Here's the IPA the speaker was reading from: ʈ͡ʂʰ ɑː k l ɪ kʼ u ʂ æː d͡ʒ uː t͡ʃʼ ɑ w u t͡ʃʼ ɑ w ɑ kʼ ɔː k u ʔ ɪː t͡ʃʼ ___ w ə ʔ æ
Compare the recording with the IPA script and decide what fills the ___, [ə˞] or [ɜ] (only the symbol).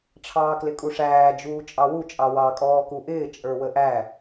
ə˞